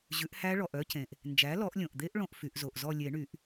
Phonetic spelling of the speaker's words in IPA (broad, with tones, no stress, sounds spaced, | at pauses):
ʑ ʉ˩˥ ʔ h æ˦˥ ɭ ɔ˩˧˩ ʔ œ˦˥ c ẽ˩ ʔ | n d͡ʒ æ˩˥ l ɔ˨˩˦ ʔ lʲ õ˩ ʔ d̪ e˦˥ ʔ ɭ õ˦˨ ʔ f y˨˩˦ ʔ z o˩˧˩ ʔ z ɔ˦˨ lʲ e˨˩˦ ɳ y˨˩˦ ʔ